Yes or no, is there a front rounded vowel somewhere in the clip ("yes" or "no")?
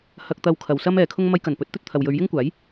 no